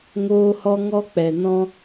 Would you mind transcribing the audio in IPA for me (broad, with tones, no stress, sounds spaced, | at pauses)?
ŋ oː˦ h ɔ˦ ŋ ɔ˦ k͡p ɛ˨ n ɔ̃˦